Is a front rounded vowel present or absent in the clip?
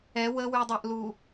present